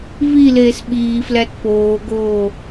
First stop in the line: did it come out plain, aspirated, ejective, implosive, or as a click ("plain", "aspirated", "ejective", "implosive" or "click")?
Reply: implosive